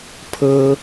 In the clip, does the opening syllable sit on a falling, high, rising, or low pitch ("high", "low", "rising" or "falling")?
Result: high